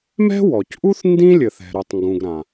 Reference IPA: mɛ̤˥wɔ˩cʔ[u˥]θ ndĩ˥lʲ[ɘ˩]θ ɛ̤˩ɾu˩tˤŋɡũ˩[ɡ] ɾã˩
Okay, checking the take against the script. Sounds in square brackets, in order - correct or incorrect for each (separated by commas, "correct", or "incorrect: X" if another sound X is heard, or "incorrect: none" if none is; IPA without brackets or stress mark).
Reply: correct, correct, correct